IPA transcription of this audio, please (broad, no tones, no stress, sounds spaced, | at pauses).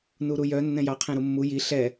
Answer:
n u ɾ u j œ nː ɛ̃ j ɑ qʰ ɛ̃ ɾ u mː u j i ɬ ɛ